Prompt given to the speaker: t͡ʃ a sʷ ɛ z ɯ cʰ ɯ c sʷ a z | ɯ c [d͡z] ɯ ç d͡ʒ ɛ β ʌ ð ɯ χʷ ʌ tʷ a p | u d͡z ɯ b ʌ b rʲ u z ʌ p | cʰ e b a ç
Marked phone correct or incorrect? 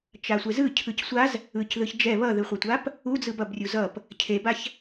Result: incorrect